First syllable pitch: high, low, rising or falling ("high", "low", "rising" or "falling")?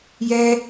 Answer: high